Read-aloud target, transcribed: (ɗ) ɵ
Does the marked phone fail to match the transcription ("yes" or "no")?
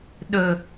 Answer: no